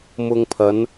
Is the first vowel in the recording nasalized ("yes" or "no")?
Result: no